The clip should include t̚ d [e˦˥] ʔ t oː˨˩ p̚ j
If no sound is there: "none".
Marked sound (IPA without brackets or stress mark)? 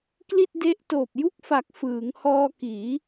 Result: e˦˥